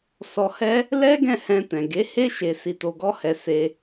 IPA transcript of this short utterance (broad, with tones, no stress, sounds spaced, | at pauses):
s ɔ˧ h ɛ˦ | l ɛ˦ ɡ ɛ̃˦˨ h ɛ̃˧ t ɛ̃˨ ɡ e˨˦ h e˦ ʃ e˧ s i˧ t o˧ ɡ ɔ˦ h ɛ˧ s e˧